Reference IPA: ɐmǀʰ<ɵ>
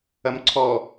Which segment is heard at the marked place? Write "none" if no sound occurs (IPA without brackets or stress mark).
ɔ